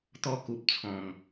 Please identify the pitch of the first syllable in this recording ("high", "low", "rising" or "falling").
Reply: high